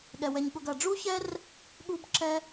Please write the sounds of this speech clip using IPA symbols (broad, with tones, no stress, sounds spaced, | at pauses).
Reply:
ɠ ɛ˩ w ɛ˨ ɲ ɠ ʊ˨ ɡ ɐ˩ ɖ͡ʐ u˥ ç ɛ˥ r | ɠ u˥ b ǁ ɛ˥